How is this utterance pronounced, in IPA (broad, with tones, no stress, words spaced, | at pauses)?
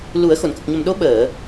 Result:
lu˨˩˦ə̯ xo˨˩˨nkə˨˩k̚ɲə˨˩mɗo˧˥ ɓəː˨˩˨